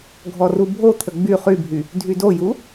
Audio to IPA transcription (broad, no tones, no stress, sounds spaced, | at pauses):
ɡʱ ɔ r u bʱ o t̪ʰ ə ɡ͡b y χ y bʱ y | dʱ y d o j u